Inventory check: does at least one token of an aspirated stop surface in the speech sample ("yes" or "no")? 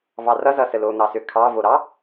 yes